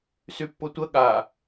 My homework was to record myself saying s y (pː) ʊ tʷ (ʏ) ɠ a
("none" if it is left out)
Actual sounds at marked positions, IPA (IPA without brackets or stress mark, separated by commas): pː, ə